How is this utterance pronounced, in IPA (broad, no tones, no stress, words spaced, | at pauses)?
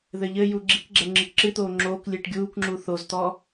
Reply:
ðɘʎɘju ɡ͡ǁikɡ͡ǁɛ ŋ͡ǁɨkǁɨt̪oː ŋ͡ǁoːklʲɨːʈ ɡʲuːkŋ͡ǁu θozt̪ɔ